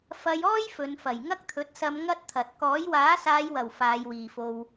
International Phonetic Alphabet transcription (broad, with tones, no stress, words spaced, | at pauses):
fɐ˧j ɔː˥j fɵ˨˧nfɐ˨˩j ŋɐ˥k̚t̪ʰɵ˨˥t̚sɐ˧m ŋɐ˥t̚t̪ʰɐ˨t̚ kɔː˨˥jwaː˨˥saː˨˧jwɐ˨˩w faː˨˧jwiː˨fo˧w